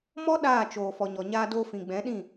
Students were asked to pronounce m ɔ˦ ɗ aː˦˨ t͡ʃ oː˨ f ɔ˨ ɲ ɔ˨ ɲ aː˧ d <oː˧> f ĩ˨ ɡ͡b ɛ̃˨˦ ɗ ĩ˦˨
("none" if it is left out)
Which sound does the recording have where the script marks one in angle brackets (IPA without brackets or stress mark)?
oː˧